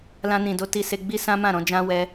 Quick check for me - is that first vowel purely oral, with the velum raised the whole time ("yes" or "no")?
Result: no